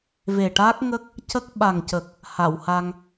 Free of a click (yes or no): yes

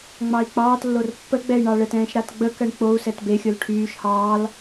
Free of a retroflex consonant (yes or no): no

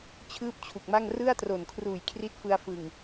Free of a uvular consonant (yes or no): yes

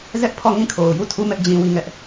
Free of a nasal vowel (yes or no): no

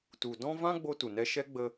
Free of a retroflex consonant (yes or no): yes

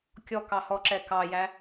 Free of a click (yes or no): no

